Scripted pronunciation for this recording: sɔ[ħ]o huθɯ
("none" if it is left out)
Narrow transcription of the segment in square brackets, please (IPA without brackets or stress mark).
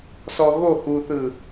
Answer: ɣ